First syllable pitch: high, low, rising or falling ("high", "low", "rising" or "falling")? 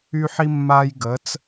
high